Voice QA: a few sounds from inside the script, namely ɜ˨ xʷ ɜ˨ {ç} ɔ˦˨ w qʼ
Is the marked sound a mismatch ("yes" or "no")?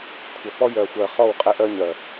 yes